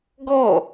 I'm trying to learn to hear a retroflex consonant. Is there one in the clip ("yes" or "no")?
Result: no